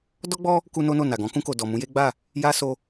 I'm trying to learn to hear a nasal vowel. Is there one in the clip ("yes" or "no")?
yes